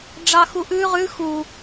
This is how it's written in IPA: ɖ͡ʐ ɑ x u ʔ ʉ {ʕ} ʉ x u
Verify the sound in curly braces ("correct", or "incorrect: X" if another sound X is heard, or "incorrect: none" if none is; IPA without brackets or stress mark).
incorrect: ʁ